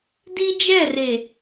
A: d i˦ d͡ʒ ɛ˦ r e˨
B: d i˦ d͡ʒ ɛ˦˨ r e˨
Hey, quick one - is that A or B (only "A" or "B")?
B